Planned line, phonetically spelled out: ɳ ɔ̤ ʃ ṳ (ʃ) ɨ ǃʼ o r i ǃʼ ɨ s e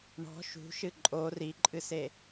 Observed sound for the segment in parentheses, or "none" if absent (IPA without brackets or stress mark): ʃ